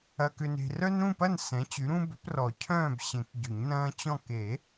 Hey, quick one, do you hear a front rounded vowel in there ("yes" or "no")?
yes